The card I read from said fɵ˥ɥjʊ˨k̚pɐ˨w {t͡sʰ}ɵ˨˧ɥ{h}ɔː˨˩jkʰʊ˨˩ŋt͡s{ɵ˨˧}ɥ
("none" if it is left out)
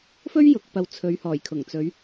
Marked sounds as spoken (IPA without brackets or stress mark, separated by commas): t͡sʰ, h, ɵ˨˧